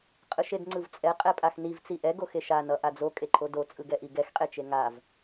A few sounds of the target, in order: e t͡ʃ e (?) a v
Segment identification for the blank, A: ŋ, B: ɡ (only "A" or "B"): A